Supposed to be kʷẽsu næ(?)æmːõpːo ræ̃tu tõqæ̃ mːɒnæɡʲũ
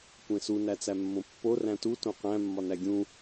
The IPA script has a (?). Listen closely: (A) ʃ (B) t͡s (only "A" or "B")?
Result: B